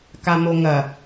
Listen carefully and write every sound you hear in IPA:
kamoŋɐ

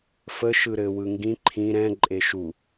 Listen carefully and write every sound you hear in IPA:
fə ʃɯɾɘ wɯŋɡĩ ǃʰĩ ɾɛ̃ ǃʼeʃu

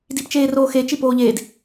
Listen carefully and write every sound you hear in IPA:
dipt͡ʃeːroːxe t͡ʃipoːʎeːd

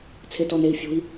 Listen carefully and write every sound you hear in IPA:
t͡sʰetɔnei̯ fʲo̤i̯

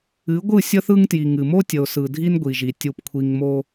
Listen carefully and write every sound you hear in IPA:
ɨ˨˦ɡʷɯ˦˨ sʲə˦θɯ˦ŋtji˨ŋɨ˨ mo˦tʲə˨ʊ̯ sɯ˨dʱi˦nɡʷi˨ʒi˨ tʲu˨pkʷʰi˨ŋ mo˦

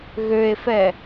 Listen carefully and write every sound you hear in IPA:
ɣøe̯fɛ

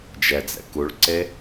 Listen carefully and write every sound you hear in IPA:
d͡ʒɛd͡zɛ̰ kuɭǀe

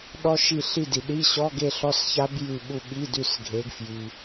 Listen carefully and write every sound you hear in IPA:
ɗɔ˦˥ ʃi˦˨ ɬi˦˨di˨ ɗi˧˥˧ɕɔ˧˥˧ɡe˦˨ ɬɔ˦˥sça˦˥b jʉ˦˨ ɓu˦˨ ɓi˧˥˧dʉ˦˨s ɡʱe˨˦ɡ fji˨

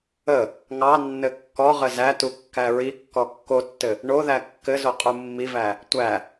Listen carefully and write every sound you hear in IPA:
ə | ŋɑnːɘ kːɔʁə zætu kːæɹikːɔ kːotːɘ | ɳoðæ kːɘzo qʼumːivæ | tʷæ

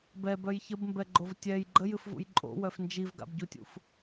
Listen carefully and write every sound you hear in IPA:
bɛbœj çəbmbɛɡ͡ǃov tʲɛj ɡ͡ǃəjɨfvṵj ǃʼo̰wœf nd͡ʒivɡa̰bɟutʲṵf

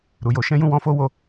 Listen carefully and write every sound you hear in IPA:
ɾu˨jo˧ʃɛ̃˦ jũ˦˨wɔ̃˧ fo˦wo˦˨

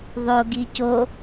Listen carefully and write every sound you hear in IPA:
ðˤoɡi co

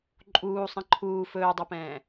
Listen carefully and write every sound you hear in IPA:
ǃʼuːsˤĩ ǃʰuː fɵːdˤɛpɛ̃ː

